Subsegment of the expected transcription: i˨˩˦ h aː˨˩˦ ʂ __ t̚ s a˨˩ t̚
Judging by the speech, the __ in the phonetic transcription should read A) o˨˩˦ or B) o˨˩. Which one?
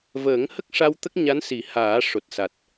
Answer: B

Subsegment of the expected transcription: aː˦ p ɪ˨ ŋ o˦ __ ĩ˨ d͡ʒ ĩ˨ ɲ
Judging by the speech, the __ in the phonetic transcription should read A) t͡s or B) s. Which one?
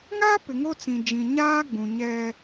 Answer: A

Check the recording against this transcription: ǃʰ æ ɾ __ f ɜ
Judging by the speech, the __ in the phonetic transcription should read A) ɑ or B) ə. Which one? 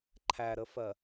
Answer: B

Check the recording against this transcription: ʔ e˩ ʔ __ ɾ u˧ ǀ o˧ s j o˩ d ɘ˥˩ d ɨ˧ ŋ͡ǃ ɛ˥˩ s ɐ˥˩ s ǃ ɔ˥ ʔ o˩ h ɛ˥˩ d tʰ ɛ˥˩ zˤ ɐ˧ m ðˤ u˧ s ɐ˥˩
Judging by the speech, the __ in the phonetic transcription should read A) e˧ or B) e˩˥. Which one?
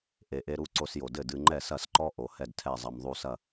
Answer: A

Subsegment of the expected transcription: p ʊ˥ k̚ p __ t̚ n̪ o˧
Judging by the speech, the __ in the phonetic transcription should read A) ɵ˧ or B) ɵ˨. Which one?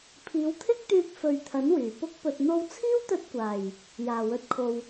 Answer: A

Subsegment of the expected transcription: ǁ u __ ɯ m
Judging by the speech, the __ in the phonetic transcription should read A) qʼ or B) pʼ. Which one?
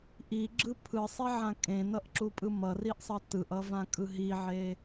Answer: B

